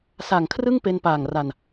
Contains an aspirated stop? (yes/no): yes